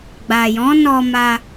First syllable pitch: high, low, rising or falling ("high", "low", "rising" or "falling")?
low